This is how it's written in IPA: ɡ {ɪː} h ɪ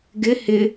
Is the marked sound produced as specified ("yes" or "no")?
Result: no